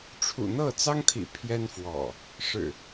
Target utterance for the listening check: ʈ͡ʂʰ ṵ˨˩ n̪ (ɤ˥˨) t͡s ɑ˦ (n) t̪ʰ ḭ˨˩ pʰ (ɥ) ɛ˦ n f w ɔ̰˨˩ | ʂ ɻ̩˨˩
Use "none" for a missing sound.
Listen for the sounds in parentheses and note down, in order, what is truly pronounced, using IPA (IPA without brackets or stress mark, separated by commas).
ɤ˥˨, ŋ, j